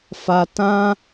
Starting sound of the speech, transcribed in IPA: f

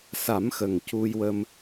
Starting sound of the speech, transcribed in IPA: s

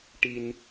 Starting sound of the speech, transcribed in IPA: ʈ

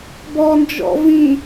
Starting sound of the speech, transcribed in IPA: b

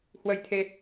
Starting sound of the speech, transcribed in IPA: h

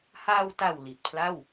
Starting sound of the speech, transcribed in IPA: h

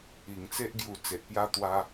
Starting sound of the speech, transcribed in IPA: i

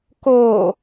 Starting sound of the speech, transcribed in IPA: k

